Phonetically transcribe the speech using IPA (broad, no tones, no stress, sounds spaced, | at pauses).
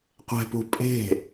qʷ ɛ̤ p ṳ pʼ e̤